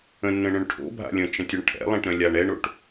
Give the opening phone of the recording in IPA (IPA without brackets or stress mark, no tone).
ə̃